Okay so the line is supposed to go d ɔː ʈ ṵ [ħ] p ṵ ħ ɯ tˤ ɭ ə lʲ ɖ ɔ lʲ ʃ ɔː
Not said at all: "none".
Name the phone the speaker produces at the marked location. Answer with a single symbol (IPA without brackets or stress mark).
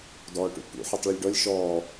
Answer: none